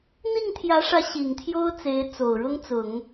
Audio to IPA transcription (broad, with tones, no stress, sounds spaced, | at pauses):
n̪ i˥˩ ŋ t̪ʰ j ä˧˥ ʂ ä˧˥ ɕ i˨˩ ŋ t̪ʰ j o˥ ʊ̯ t͡s e˧˥ ɪ̯ t͡s o˨˩ ʊ̯ ɻ ʊ˥ ŋ t͡s ʊ˨˩˦ ŋ